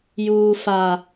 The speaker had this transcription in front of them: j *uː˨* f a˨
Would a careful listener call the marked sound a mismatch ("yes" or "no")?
no